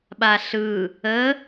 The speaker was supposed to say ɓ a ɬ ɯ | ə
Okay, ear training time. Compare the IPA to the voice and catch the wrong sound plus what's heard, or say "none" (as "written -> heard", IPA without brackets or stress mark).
none